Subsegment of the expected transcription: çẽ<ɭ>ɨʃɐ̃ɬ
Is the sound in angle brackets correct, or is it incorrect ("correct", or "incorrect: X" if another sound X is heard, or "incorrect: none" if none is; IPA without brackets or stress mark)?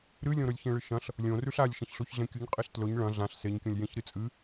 correct